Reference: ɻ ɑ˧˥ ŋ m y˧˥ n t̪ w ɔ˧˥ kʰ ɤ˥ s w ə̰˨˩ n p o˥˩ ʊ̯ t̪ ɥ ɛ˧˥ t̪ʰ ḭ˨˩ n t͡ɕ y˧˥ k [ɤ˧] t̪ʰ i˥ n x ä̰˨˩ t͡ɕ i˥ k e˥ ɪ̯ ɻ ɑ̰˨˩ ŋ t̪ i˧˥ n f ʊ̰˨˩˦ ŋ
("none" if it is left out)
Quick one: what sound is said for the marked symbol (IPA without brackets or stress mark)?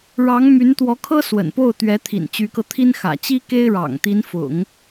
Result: ɤ˧